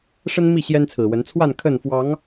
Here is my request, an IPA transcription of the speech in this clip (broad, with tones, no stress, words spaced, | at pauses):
ʂə˦nmi˥˨ ɕjɛ˦nt͡sʰɹ̩˨˩wə˨˦n t͡sʰwa˥˨n kʰə˥˨n fwɑ˨˦ŋ